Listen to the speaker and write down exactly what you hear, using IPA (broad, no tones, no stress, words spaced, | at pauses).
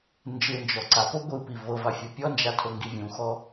nd͡ʒɯnd͡ʒɔ ǀapo ɡʷɯpi vɤvafʲu pʲɔnd͡ʒatʰoŋɡi vʲũxɔ